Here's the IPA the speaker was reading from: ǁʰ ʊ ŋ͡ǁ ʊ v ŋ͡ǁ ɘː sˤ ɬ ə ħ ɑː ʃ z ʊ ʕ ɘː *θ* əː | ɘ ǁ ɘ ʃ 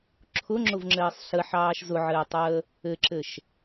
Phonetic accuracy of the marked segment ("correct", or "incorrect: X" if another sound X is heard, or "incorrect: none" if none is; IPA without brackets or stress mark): incorrect: tˤ